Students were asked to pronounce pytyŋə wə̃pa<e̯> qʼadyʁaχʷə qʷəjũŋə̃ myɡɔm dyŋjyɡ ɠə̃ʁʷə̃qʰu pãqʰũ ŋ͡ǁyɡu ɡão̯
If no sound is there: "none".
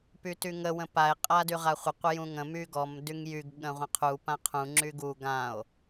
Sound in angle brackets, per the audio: e̯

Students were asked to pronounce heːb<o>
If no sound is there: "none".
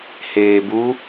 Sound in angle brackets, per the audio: u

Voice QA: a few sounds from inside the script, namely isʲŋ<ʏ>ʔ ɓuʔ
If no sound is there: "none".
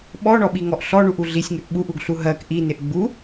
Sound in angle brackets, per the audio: ʏ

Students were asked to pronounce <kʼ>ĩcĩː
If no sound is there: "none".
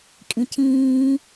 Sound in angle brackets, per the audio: kʼ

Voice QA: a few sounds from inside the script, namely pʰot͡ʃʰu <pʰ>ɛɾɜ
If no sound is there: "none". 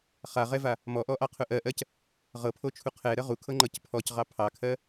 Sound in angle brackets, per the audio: qʰ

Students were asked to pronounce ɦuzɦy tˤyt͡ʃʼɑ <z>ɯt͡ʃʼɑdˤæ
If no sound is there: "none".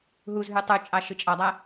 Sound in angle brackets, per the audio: ʃ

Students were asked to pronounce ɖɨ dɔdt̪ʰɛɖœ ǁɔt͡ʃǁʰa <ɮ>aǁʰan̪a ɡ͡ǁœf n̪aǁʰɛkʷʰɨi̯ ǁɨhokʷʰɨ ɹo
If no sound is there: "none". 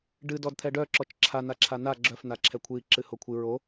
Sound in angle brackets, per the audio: n̪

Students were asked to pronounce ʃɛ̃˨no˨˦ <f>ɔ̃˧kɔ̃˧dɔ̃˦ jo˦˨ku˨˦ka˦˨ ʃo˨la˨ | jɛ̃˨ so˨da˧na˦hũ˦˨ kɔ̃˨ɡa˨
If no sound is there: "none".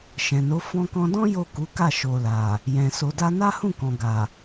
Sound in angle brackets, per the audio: f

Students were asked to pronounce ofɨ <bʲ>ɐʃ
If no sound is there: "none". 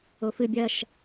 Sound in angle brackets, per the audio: bʲ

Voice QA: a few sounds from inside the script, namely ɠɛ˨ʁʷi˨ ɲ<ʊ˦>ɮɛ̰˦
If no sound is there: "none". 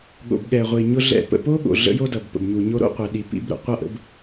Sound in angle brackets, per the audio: ʊ˦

